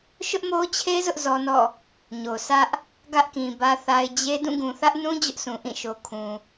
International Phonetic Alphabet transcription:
ʃ ʊ˦ ʔ m o˦ t͡ɕʰ e˦ z ʊ˦ ʔ z ɔ˦ n ɔ̰˦˨ | ɲ o˨ sʰ ä˦ ʔ | ɡ ä˦ ʔ k ĩ˨ b ä˦ θ a˦ ɪ̯ d͡ʑ e˦ d ũ˦˨ ɡ ũ˨ θ ä˦ ʔ n ũ˦ d͡ʑ ʊ˦ ʔ sʰ ũ˨ ʔ ĩ˦˨ ʃ o˨ kʰ ũ˨

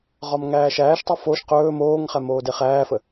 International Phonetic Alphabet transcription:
ʁ ɒ m ŋ æː ʃ æː ʃ tˤ o f o ʃ q ɵː m oː ŋ χ æ m oː d e χ æː f ə

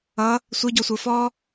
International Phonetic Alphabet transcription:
ʌ | sʷ ə˞ ɟ ɔ sʷ ə˞ f ɔ

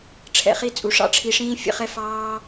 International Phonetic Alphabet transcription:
ʈ͡ʂʰ ɛ̰˨ χ i˧ t͡sʼ u˨ ʂ ɑ̰˦˨ ʈ͡ʂʰ i˧ ʂ ĩː˦ fʲ ə̰˧ χ ɛ˦ f ɑː˦

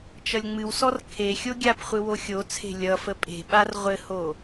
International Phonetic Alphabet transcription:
t͡ʃ ʌ lʲ ŋ͡m ɨ w s ɔ r kʰ e xʲ o ɡʲ a p χʷ ɨ w o xʲ o t͡sʰ e̤ lʲ ʌ f ə pʼ e̤ ɓ a r ʁʷ ɘ h o

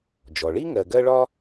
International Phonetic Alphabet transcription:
d͡ʒ ɔ˩ ɭ i˥ ŋ ɜ˨ ɡ ɜ˥ ɭ ɒ˥

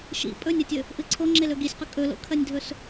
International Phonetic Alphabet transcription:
ʃ ḭ pʼ ɵ nʲ ɐ tʲ ɵ | ʔ ɨ ǀʰ o ŋ͡ǁ e l ɵ ɡ i sʲ q ɵ kʼ ɵ l o̰ kʰ ɐ nʲ dʱ ɵ s

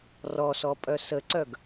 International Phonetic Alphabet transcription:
r ɔ s ɔ pʼ œ s ə ǀ œ ɡ

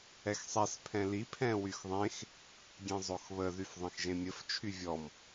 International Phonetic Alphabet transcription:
ɛ x sˤ ɛ s pʰ ɛ̃ l i pʰ ɛ̃ w y x ðˤ ẽ x | ɡʲ ẽ zˤ o x β ə ð y f ðˤ ẽ x ʒ ẽ mʲ ə f t͡ʃʰ y vʲ ɔ m

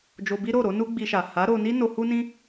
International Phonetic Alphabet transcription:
d͡ʒ o˧ b i˦ ɾ o˦˨ ɾ o˧ n u˧ ɡ͡b i˧ ʃ a˨ h a˨˦ ɾ o˧ n i˦ n o˧ h u˦ n ĩ˦

